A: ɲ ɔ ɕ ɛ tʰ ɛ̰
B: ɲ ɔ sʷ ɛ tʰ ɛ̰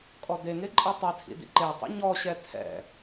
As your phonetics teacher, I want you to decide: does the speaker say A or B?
A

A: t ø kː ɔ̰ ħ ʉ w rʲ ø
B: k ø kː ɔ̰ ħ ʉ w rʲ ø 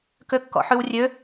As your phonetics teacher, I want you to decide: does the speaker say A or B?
B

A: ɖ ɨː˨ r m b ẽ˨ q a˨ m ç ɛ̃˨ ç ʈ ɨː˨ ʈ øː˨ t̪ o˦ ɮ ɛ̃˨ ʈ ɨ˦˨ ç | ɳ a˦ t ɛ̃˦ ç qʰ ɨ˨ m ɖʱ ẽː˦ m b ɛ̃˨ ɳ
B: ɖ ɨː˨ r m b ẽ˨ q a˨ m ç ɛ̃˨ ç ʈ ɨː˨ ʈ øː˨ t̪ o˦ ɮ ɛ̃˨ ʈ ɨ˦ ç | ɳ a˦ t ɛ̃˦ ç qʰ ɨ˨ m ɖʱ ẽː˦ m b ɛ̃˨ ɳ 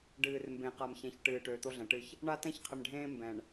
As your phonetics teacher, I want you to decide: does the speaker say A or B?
A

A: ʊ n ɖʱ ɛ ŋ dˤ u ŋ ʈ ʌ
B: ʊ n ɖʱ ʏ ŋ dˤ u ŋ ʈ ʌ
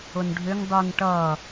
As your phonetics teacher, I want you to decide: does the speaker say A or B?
B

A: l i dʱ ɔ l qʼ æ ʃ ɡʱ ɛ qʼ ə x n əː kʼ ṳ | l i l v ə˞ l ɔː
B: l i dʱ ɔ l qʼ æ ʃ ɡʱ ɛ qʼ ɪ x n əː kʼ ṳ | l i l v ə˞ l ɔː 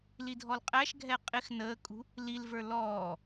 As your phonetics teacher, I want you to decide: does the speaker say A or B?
B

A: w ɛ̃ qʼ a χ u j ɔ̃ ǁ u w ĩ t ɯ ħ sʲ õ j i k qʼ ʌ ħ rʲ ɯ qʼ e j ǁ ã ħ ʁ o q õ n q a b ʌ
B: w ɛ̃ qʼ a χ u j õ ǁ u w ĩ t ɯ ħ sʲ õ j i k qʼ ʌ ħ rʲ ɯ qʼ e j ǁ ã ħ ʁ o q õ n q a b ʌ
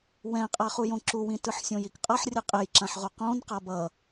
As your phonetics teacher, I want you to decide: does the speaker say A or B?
B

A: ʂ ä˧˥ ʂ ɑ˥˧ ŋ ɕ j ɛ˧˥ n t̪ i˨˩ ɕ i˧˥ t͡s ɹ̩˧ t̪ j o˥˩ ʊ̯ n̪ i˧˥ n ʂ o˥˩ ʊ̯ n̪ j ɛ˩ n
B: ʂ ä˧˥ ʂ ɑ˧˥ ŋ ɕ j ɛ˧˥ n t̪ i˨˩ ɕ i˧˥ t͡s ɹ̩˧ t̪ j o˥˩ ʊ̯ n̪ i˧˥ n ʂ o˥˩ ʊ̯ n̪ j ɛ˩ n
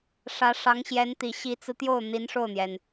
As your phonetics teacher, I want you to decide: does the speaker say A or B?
B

